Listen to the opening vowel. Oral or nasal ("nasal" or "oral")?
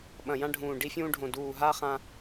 nasal